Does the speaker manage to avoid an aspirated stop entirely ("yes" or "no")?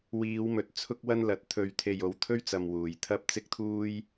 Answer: no